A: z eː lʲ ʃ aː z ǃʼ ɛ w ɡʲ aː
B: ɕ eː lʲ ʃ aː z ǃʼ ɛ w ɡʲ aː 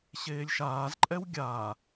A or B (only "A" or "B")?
B